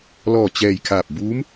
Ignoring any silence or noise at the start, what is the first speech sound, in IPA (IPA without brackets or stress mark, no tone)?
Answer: l